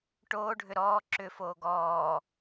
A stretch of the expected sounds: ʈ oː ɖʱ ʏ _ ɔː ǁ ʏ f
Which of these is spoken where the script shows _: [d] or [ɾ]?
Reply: ɾ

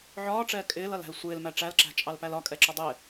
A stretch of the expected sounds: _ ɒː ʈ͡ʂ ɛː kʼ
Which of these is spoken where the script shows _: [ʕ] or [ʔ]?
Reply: ʕ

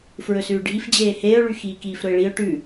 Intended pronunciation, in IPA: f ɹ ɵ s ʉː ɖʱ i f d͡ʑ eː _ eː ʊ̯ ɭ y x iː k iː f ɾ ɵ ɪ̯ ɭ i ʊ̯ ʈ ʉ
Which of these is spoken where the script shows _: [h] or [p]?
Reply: h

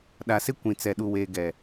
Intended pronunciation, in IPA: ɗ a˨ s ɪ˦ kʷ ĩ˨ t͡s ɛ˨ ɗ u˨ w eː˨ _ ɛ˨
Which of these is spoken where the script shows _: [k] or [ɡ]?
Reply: ɡ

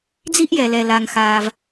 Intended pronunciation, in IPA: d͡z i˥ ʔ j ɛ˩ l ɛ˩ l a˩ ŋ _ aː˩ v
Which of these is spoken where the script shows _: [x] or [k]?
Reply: x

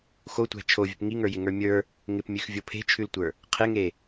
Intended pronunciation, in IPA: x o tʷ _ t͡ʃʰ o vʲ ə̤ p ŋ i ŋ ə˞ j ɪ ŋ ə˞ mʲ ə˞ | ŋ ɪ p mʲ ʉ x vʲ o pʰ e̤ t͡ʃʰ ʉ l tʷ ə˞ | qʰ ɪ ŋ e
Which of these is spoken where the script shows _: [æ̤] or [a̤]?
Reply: æ̤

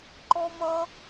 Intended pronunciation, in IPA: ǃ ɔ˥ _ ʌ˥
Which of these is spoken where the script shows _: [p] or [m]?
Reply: m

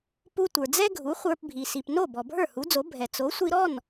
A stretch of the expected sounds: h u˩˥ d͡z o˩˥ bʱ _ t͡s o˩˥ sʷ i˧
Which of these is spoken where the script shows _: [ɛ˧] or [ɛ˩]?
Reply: ɛ˩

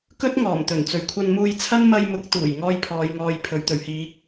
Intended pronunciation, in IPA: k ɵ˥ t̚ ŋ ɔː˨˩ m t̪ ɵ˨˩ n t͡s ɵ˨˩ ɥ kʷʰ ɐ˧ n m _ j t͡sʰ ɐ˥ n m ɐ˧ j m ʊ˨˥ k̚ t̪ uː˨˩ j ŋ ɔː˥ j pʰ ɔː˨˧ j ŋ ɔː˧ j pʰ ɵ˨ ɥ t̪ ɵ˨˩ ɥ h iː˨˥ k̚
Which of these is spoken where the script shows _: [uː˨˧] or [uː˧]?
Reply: uː˧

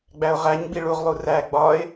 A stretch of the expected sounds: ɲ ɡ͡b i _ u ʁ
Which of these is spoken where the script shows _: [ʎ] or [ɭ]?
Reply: ɭ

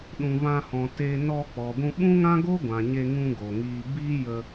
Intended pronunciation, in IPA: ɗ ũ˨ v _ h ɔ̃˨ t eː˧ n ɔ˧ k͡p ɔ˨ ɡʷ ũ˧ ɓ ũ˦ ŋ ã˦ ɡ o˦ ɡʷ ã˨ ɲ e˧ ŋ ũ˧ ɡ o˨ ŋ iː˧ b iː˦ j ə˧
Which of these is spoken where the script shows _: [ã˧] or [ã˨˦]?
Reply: ã˧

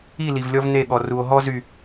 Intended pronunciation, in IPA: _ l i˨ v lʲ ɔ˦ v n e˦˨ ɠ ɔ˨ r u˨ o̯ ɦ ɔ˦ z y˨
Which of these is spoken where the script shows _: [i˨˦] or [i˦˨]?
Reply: i˦˨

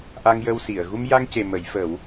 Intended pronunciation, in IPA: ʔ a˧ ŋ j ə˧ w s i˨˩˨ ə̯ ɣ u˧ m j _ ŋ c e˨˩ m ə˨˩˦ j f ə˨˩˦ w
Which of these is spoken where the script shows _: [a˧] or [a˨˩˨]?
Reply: a˧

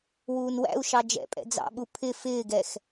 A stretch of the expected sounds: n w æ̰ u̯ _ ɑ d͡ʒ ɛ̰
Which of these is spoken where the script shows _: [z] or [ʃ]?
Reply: ʃ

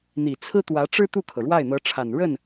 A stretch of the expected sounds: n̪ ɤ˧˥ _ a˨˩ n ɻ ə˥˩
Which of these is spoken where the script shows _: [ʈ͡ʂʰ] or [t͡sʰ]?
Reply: ʈ͡ʂʰ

